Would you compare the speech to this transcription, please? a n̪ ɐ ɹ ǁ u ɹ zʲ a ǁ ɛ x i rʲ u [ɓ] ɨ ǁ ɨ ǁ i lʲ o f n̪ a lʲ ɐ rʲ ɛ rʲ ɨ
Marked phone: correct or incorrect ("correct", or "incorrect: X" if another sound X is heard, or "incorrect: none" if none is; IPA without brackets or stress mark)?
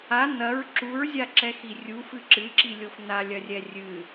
incorrect: f